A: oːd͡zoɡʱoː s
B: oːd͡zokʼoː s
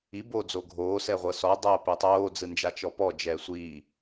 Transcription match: A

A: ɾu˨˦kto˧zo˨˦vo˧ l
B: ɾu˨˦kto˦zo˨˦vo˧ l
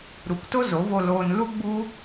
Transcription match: B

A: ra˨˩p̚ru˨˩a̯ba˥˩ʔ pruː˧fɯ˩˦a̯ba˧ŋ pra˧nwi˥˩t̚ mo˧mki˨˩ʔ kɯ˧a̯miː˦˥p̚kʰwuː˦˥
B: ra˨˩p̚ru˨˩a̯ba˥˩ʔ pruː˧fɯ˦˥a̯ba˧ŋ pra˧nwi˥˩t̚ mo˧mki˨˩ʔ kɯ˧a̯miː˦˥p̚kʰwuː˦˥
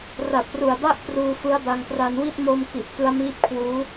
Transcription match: B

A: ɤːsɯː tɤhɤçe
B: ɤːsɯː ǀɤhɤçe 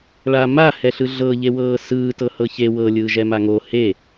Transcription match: A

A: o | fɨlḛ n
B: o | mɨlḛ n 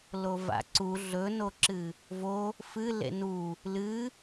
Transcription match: A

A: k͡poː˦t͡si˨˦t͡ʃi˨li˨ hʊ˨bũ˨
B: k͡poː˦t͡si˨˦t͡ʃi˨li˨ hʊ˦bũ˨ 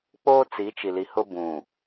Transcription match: B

